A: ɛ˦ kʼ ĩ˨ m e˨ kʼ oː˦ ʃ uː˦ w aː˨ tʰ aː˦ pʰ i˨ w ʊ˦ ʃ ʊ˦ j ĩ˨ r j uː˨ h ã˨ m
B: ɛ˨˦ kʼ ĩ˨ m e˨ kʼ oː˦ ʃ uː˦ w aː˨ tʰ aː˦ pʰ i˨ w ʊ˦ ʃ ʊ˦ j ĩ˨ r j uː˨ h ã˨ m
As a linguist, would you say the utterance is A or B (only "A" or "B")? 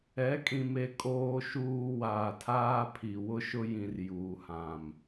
B